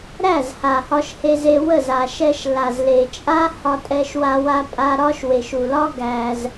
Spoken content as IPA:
ɾ æ˦˨ z h a˨ h ɒ˧ ʃ h e˧ z e˧ w ə˦˨ z a˨ ʃ ɛ˧ ʃ l a˨ z l e˨ t͡ʃʼ a˦ h ɒ˧ tʼ ɛ˧ ʃ w a˧ w a˧ pʼ a˧ ɾ ɒ˦ ʃ w e˨ ʃ u˨ l ɒ˦ ɡ æ˧ z

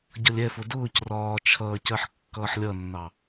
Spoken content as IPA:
ɟ ʌ lʲ ɛ f ʊ d ʊː c r ɒː t͡ʃʰ ʌː c ɜ ħ kː ʌː ħ lʲ ʌ nː ɑ

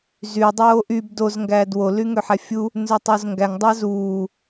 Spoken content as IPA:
z y dˤ oː ʔ y b d o z ŋ ɡ æː d w o l y ŋ ø ħ æ fʲ u | n z ø tˤ o z ŋ ɡ æ ŋ dˤ ɑ z uː

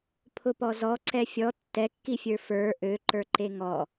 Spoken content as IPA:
pʰ ʊ p ɔ z ɔ ǀ ɛ fʲ ɔ tː ɛ kː i fʲ ə˞ f ə˞ ʔ ø ǃ ə˞ ǃ e ŋ ɔ

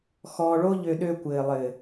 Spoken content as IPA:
x ɔː˧ ɭ o˦ ʎ ø˧ ɗ ø˧ kʷ ɘː˨ lˠ ɘː˨

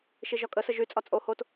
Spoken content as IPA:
ʃ i ʒ ɒ kʼ ə s ə ʒ y t͡sʼ ɒ t͡sʼ o h o t

